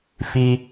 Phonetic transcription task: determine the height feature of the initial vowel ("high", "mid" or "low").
high